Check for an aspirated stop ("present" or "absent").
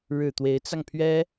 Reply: present